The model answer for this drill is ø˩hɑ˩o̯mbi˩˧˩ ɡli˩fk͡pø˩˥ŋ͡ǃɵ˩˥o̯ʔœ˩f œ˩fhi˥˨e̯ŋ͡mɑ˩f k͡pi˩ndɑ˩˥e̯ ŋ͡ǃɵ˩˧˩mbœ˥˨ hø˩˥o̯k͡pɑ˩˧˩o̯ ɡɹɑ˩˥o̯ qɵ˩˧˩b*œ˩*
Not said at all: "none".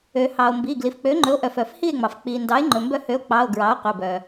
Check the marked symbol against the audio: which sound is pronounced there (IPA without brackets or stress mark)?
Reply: œ˩